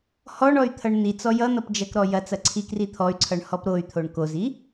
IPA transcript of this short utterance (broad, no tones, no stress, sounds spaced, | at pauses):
h ɔ ɳ ɔ y̯ t̪ʰ ʌ ɳ n̪ i t͡s ɔ j ʌ n̪ ʌ p d͡ʒ ɐ k ɾ ɔ j ɐ t͡s ɐ ǀʰ i k r i t̪ʰ ɔ y̯ ǀʰ ʌ ɳ h ɔ p ɾ o y̯ t̪ʰ o ɳ k o z i